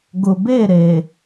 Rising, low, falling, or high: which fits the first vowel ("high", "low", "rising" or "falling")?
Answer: low